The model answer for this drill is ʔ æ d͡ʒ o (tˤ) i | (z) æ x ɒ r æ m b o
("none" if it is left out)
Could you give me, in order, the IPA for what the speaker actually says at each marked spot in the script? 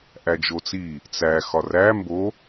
t͡s, t͡s

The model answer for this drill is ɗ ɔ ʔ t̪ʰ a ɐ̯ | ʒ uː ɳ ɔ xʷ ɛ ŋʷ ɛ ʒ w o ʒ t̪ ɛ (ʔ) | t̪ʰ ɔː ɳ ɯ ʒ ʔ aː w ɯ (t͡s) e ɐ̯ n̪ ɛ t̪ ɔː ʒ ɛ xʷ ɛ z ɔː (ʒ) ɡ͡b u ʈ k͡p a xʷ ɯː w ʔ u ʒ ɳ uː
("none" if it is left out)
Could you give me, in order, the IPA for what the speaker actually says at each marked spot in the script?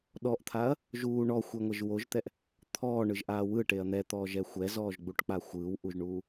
ʔ, ʈ, ʒ

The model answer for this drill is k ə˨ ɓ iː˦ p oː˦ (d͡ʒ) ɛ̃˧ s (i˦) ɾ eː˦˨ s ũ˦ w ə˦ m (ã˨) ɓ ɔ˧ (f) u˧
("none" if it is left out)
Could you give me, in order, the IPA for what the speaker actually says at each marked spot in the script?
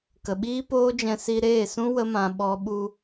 d͡ʒ, i˧, ã˧, ɓ

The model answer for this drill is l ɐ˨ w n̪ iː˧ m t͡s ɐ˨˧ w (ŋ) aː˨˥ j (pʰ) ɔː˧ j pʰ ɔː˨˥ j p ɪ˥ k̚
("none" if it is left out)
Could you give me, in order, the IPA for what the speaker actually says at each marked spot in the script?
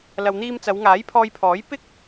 ŋ, pʰ

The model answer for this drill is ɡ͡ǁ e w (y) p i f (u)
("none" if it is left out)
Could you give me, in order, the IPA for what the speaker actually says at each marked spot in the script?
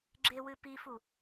ɨ, u

